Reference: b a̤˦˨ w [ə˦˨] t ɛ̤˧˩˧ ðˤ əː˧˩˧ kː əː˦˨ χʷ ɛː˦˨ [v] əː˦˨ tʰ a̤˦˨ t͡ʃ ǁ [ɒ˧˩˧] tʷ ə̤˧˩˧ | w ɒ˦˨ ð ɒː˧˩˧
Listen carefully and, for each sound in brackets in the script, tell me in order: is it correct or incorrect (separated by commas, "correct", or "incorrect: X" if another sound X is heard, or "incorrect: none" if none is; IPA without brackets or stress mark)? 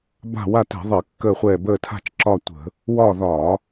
incorrect: a˦˨, incorrect: b, incorrect: ɒ˦˨